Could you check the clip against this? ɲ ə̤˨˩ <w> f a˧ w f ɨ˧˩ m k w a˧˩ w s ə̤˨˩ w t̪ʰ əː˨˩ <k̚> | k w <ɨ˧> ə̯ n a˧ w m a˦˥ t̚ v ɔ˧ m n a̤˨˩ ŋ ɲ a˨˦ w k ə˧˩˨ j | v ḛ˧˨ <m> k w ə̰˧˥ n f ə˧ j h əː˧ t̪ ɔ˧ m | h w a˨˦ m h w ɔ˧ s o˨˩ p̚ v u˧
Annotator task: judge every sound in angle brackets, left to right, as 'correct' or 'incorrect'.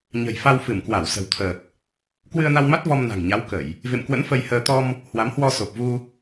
incorrect: j, correct, correct, correct

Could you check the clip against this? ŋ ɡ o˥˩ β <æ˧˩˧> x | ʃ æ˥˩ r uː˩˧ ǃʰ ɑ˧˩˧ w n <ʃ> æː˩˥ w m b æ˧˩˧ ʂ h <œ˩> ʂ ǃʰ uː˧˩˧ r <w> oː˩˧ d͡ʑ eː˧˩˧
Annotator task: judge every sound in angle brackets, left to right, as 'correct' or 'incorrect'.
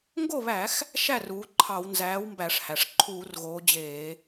correct, incorrect: z, incorrect: æ˩, incorrect: ɣ

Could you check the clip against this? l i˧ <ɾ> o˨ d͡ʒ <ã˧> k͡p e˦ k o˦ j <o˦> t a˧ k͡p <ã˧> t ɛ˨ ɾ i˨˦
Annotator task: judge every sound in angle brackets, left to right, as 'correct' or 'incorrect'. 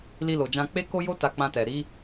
incorrect: l, correct, correct, correct

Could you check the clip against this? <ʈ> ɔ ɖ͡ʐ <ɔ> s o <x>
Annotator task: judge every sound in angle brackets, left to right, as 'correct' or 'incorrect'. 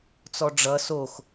incorrect: t͡s, incorrect: ʌ, correct

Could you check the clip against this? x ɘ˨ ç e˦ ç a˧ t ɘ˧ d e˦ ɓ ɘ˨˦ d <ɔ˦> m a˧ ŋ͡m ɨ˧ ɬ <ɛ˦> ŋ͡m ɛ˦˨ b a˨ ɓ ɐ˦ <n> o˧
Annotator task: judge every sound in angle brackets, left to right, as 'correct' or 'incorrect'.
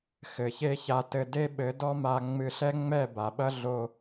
correct, correct, incorrect: ɮ

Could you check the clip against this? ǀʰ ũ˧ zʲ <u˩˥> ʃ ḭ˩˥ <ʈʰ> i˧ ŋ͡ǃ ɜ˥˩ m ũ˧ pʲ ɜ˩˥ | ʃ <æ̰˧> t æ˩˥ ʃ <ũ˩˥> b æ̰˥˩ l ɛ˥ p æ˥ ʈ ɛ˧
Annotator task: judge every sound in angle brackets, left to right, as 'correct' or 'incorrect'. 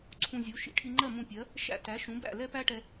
correct, correct, incorrect: æ̰˥˩, correct

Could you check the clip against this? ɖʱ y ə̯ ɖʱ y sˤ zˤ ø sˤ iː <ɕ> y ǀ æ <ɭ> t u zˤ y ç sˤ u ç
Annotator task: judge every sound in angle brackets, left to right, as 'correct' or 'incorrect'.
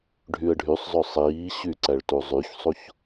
correct, correct

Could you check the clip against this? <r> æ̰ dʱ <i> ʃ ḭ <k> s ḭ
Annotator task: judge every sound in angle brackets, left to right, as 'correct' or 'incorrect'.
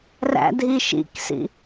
correct, correct, correct

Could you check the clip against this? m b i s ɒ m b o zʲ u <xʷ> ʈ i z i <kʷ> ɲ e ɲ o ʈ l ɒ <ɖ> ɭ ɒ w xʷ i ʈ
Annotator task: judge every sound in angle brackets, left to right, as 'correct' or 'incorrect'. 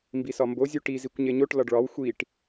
incorrect: none, correct, correct

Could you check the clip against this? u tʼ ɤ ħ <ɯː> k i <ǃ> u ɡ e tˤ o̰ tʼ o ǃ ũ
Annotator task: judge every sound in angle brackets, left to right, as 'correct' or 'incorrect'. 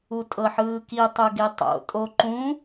correct, incorrect: tˤ

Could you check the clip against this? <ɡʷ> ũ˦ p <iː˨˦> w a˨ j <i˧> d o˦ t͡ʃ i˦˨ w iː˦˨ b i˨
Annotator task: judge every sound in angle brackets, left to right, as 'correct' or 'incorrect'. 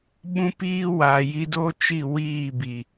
incorrect: ɓ, incorrect: iː˦, correct

